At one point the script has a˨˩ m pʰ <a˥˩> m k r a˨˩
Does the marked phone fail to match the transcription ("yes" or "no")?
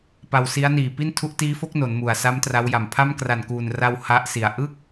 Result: no